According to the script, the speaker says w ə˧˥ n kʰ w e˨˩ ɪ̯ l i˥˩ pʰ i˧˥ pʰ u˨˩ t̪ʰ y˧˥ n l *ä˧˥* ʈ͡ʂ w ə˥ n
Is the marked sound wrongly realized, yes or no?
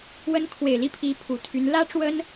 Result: yes